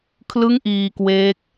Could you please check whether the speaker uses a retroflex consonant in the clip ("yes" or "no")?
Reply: no